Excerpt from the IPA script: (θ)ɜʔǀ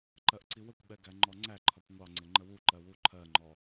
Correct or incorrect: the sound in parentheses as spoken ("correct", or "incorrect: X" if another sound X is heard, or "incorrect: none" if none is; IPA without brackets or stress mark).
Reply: incorrect: ǃ